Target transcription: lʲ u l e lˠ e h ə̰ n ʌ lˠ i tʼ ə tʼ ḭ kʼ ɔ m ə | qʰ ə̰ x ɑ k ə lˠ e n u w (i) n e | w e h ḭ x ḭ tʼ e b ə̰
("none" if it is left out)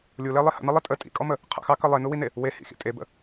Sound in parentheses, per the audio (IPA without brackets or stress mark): i